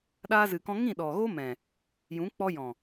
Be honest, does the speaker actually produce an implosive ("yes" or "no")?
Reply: yes